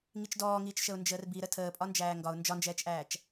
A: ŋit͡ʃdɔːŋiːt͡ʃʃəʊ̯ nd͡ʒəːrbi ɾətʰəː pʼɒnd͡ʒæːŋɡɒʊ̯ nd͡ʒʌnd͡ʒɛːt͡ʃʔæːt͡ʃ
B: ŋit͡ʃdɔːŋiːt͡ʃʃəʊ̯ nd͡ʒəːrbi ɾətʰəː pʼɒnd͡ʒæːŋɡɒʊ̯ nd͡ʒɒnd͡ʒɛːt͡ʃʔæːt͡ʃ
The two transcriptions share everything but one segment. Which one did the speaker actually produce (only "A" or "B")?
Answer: B